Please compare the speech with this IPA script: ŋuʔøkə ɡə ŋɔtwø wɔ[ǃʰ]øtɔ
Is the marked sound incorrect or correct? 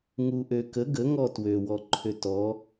correct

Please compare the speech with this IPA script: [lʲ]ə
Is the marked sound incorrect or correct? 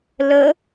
incorrect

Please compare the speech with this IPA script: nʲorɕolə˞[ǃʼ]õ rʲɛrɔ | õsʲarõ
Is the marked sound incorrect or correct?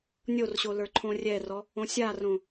incorrect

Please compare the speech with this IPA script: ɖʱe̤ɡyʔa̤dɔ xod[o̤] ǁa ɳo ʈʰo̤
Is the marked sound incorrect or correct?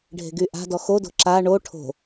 correct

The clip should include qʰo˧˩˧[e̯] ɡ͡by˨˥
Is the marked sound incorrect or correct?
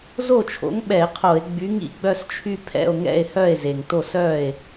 correct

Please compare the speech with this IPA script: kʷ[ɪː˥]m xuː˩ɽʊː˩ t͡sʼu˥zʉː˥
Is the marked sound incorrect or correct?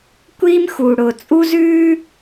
incorrect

